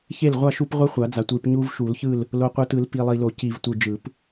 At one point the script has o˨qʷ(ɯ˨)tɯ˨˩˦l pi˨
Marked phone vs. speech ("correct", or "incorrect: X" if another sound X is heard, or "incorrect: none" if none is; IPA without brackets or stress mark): correct